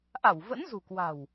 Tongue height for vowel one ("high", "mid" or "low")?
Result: low